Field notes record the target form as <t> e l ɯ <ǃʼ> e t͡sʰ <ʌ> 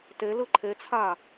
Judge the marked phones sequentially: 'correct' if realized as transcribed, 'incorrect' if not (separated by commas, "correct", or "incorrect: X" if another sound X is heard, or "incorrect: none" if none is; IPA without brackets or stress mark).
correct, incorrect: ǃʰ, incorrect: a